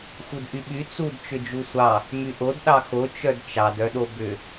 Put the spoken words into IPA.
x u d ʔ y ɓ y t͡s u d t͡ʃ ʏ d͡ʒ u sʷ ɑ | m y ʔ o d ɗ ɑ x o t͡ʃ œ d t͡ʃ ɑ d œ ɗ o b ʏ

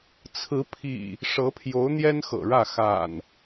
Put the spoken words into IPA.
t͡sʰ ɹ̩˨˦ pʰ ḭ˨˩ | ʂ ɤ˨˦ pʰ j o˨˦ ʊ̯ n̪ j ɛ˦ n x ɤ̰˨˩ ɻ ä˥˨ x a̰˨˩ n

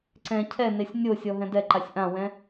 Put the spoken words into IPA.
ǀ ɛ̃ cʰ ɛ n e sʲ nʲ o sʲ ɔ ɦ ɛ̃ d ɛ ǃ a sʲ ʔ ã w ɛ̃

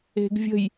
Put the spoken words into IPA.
e̤ ɡ vʲ ə̤ j

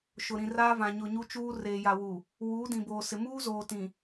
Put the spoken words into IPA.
ʃ ʊ˨ ɾ ĩ˨ r aː˦ v ã˨ ɲ ʊ˨ ɲ u˦ t͡ʃ uː˦ r eː˨ j a˨ w u˨ | w uː˨˦ d ĩ˨ b oː˨ s ɪ˨ m uː˦ z oː˨ t ĩ˨

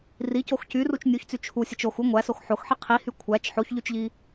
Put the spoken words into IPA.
r i c o x c y r u t͡ʃ nʲ u ç t͡s y t͡ʃʰ u sʲ e t͡ʃ o x u ŋʷ æ s o x ħ o x ħ i qʰ i h y kʷʰ æ t͡ʃ ħ o ç ʎ y t͡ʃ ʎ i

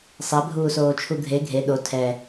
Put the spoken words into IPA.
sˤ ɛ bʱ uː s oː t͡ʃʰ u ɡʱ e ɡʱ e ɗ o tʰ ɛ

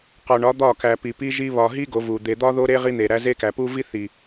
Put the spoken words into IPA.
q ɒ˨ ɳ ɒ˨˦ d̪ ɒ˦˨ k æ˨ p i˨ p i˦ ʒ i˦ β ɒ˨ ɦ i˦ ɡ o˨˦ v u˨ d̪ e˨ d̪ ɒ˦ ð o˦ ɾ e˦ ʁ i˦ n̪ e˨ ɾ æ˦ z e˦ k æ˨ p u˦ v i˦ θ i˨

